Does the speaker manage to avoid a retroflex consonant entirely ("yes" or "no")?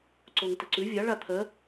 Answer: no